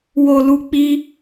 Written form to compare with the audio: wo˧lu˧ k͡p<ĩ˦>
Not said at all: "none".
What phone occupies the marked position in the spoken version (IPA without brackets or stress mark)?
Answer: i˦